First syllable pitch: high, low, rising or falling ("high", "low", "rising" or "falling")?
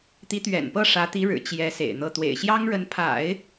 rising